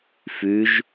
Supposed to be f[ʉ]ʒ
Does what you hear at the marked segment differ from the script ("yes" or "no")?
no